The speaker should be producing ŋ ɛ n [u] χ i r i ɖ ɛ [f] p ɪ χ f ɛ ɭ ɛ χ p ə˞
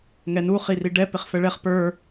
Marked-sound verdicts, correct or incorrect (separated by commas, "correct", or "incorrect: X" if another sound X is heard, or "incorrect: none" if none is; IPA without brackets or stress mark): correct, incorrect: none